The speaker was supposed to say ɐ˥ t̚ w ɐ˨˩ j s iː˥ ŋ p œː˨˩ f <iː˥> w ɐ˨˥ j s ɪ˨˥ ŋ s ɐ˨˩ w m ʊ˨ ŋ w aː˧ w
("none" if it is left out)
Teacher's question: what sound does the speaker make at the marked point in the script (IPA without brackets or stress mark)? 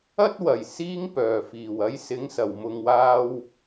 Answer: iː˨˩